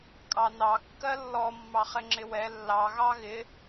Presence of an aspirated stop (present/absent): absent